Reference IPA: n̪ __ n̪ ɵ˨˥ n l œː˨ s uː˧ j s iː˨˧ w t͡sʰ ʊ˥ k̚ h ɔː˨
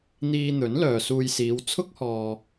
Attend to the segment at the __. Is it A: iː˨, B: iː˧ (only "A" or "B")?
B